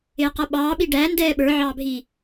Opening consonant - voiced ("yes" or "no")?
no